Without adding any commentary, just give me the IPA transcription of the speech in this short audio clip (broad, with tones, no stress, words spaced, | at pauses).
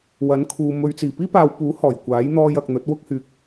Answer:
wɐ˨˥nkʰuː˨ mɵ˧ɥ t͡siː˨˩piː˥paː˨wpuː˨˥ hɔː˨˩j kʷaː˨˥jn̪ɔː˧jɐ˨k̚ n̪ɵ˨˥t̚wʊ˥k̚hyː˧k̚